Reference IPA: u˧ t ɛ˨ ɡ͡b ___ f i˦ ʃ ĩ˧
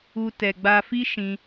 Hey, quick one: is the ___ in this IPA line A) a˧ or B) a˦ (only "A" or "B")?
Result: A